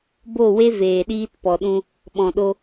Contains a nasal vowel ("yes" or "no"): yes